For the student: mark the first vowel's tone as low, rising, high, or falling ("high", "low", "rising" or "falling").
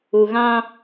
low